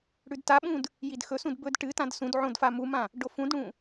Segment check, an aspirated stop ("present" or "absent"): absent